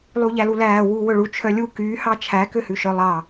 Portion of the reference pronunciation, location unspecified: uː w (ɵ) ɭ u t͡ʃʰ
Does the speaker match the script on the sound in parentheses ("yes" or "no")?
yes